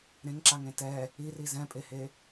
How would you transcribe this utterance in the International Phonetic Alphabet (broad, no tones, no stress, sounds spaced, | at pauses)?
ɾ ẽ ŋ ǁ a ŋ ẽ t ɛ | i r i z ɛ̃ pʼ e h e